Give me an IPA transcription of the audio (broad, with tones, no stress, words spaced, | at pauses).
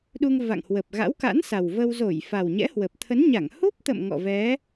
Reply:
ɗu˧ŋ va̰˧˨ŋhwə˨˩p̚ɣa̰˧˥wka̰˧˥n sa˨˩wvəː˧w zo˧˩j fa˨˩wɲɛ̰˧˥hwə˨˩p̚ t̪ʰə˨˦nɲa˧˩ŋ hu˦˥p̚t̪ə̰˧˨m ŋɔ̰˧˨vɛ˨˦